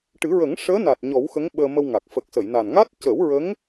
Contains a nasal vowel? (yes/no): no